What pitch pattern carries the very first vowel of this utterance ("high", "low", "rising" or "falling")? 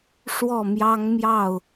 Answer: falling